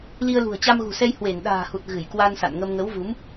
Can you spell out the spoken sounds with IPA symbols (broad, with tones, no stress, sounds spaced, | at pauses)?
l i˧ ə̯ l ṳ˨˩ ə̯ t͡ɕ a˧ m ɣ ṳ˨˩ s ɛ˧ j h w e˧˩ n ɗ a̤ː˨˩ h u˨˩ t̚ ɣ ɨ˧˩ j k w a˧ n s a̰˧˨ n ŋ ə˧ m ŋ ə˨˦ w v u˨˦ m